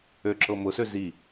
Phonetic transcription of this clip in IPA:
ø ǁ ɤ m ʊ s ø z i

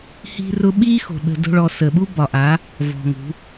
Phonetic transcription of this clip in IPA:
h i̤˦ r ʊ˦ ɓ i˦ x o̤˨ ɗ ə̤˧ d o̤˦ ɭ ɔ˧ s ə˨ ɓ u˦ b ɒ˨ ʔ a˨˦ | v ɔ̤˧ ŋ ṳ˨˦

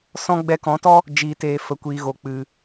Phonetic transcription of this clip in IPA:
s ɔ̃˧ ɡ͡b ɛ˧ k ɔ̃˨˦ t ɔ˦ | d͡ʒ iː˨ t eː˨ f ə˨ kʷ iː˨ ɣ o˨ k͡p ɨ˨

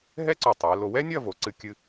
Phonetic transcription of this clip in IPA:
ɦ ɛ˥ ǀ o˧˩ tˤ ɛ˩˧ l o˧ w ɛ˥ nʲ ɐ˥˧ v o˩˧ ǀ ɨ˧ kʲ ɨ˧

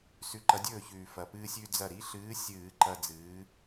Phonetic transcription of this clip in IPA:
s ʉ˨˥ ǃ ɐ˨˥ dʲ ɵː˥˩ ç ʉː˨˩ f ɐ˨˩ p ɨː˦ sʲ ʉ˦ d͡z ɐ˥˩ ɾ i˨˥ ɬ ɨː˨˥ sʲ ɨː˧˩˧ ǃ ɐ˦ d͡z ɨː˨˥

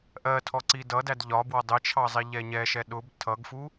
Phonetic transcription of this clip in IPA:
ʔ ɜ tʰ ɔ ǀ i d ʌ d æ d ʎ ɒ b w ɒ dˤ ɪ t͡ʃʰ ɑ zˤ i ʎ ɛ ɲ ɛ ʃ ɛ ɗ ʊ b tʰ ʌ ɡ f u

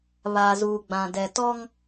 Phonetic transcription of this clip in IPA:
β aː˨ z uː˨ ɡ͡b ã˨ d ɛ˨ t ɔ˦ ŋ

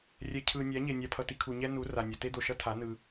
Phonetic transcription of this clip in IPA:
rʲ ɛ˨ cʰ ɯ˨ nʲ a˨˦ ɲ e˨ nʲ a˧ pʰ ʌ˧ t i˧ kʰ u˨ ɲ ɛ˦ n u˨˦ r a˨ nʲ ʌ˨ t e˦ d̪ o˨ ʃ ʌ˦ tʰ a˨˦ n ɯ˧

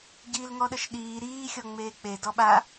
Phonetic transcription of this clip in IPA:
ɟ iː l ŋ ɔ ɗ ə ʃ ɗ iː ɾ iː xʲ ɔ ŋ͡m eː k͡p e d ɔ ɓ a

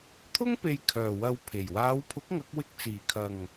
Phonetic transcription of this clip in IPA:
t̪ʰ ʊ˥ ŋ p e˨ j kʰ œː˨˩ w ɐ˧ w pʰ e˨˩ j w aː˨˧ w pʰ ʊ˨˥ k̚ ŋ ɐ˨˥ k̚ w ɪ˧ k̚ t͡s iː˨˩ kʰ ɐ˨˩ ŋ

